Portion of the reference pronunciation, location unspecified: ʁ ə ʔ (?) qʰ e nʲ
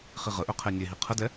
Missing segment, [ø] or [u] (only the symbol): ø